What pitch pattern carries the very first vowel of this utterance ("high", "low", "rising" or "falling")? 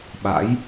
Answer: rising